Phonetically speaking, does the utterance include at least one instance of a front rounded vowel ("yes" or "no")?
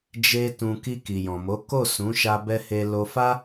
no